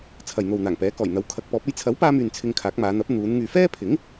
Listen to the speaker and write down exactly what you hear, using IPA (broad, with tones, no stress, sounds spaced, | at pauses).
t͡sʰ ɐ˨ j n̪ o˨ w n̪ aː˨˩ ŋ p ɛː˨˥ k ɔː˨˩ j n̪ ɐ˨˥ w kʰ ɐ˨˥ k̚ p ɔː˨˥ p̚ ɐ˧ j t͡sʰ ɐ˨˥ w p aː˧ m yː˨ n t͡sʰ ɪ˧ ŋ kʰ aː˨˥ k̚ m aː˨˧ n̪ ɐ˨˥ p̚ n̪ uː˨˧ n ŋ yː˨ f ɛː˥ pʰ ɪ˨˥ ŋ